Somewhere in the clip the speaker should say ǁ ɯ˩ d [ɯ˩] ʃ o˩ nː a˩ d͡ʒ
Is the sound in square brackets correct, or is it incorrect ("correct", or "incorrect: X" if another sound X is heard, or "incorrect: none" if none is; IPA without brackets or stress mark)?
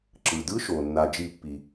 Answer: incorrect: ɯ˧˥